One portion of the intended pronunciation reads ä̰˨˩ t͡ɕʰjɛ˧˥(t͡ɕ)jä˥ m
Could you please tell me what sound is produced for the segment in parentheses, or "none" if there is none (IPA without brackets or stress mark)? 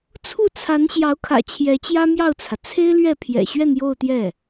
t͡ɕ